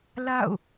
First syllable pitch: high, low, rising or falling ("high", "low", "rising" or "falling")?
falling